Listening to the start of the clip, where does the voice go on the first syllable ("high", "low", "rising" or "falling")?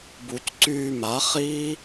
low